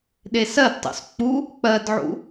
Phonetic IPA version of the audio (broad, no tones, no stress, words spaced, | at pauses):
ɗesɜdtˤṵs k͡pu | k͡pɜdʕṵ